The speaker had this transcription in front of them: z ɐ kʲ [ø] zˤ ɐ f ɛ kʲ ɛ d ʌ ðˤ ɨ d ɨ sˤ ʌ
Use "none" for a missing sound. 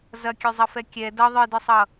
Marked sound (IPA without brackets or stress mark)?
ø